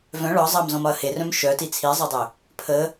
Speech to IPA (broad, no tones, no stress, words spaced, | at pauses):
vœ̃ ɭɒ zˤɑmzɔ̃mɒɐ̯ herœ̃m ʃœti t͡sʰizˤœdˤø | pʰə